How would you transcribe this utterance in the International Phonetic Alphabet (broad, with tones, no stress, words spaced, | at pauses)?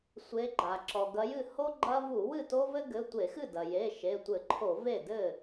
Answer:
sʷe˨˦ɡ͡ǃa˩ ǁɔ˩ɡɐ˨˦jɨ˥˩ ho˦ ɡ͡ǃɐ˦ vu˧˩˧ wɨ˥˩to˦vɘ˦ɡɘ˩˧˩ tʷe˧˩˧xɨ˥˩dɐ˩ je˩˧˩ ʃe˩˧˩tʷɘ˧˩˧ǃʰo˧˩˧ ve˥˩dɘ˥˩